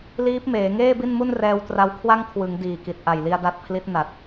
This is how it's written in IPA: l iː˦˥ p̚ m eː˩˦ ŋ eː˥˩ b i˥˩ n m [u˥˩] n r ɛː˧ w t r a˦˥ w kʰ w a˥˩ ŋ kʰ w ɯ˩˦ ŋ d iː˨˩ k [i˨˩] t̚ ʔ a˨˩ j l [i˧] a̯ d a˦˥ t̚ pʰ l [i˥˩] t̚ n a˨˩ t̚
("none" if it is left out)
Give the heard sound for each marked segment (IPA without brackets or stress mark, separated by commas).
u˥˩, i˨˩, i˧, i˦˥